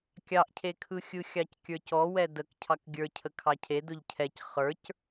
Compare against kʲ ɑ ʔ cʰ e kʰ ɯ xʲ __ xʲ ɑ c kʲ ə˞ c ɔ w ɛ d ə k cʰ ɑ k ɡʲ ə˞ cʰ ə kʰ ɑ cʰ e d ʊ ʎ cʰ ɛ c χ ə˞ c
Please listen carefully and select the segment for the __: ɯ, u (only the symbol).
ɯ